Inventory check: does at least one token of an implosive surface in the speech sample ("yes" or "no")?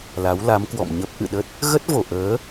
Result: yes